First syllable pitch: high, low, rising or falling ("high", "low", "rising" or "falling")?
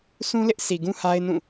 high